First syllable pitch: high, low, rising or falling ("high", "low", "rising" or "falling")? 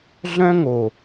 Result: high